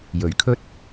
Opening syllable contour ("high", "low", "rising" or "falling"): low